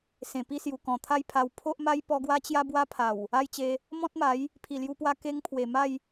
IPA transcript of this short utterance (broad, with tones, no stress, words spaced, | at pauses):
sẽ˨˩pi˥˧sju˨˩ kɔ̃˨˩t̪ʰa˥˧jpʰa˧w pʰo˦ʔma˦jpɔ˧ ɡwa˧t͡ɕja˧ bwa˦pʰa˨˩w | a˥˧jt͡ɕe˧ | mɔ̃˦t̚ma˨˦j | pʰi˨˩lju˧pwa˧ ke˦ŋpʰwe˨˩ ma˥˧j